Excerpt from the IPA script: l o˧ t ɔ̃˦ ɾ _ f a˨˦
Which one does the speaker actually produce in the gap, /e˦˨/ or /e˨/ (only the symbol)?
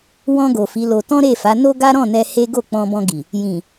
e˦˨